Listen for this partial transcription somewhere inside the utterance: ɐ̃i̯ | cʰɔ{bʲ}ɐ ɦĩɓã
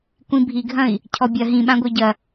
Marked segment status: correct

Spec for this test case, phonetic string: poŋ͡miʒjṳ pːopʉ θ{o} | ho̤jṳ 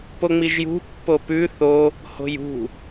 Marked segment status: correct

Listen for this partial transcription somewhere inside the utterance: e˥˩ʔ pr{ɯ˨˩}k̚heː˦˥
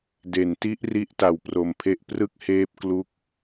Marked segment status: incorrect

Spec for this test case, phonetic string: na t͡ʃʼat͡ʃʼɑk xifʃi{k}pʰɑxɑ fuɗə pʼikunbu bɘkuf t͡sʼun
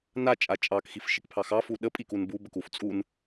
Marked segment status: correct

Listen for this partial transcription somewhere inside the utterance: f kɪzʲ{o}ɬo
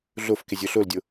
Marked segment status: correct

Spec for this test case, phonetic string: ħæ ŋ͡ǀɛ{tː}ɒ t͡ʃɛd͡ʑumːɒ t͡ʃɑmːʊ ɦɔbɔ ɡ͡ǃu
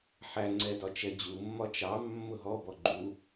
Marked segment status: incorrect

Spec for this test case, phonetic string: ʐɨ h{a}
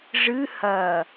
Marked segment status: incorrect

